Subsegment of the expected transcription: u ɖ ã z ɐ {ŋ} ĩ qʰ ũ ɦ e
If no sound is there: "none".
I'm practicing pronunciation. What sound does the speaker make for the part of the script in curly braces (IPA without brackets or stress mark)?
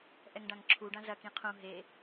k